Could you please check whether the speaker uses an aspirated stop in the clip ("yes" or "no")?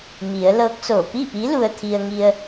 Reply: yes